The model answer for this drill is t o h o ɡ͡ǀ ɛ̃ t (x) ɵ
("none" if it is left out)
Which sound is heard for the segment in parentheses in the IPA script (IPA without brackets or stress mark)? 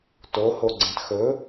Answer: x